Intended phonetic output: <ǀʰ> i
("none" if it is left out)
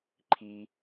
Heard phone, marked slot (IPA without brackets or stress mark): ǃʰ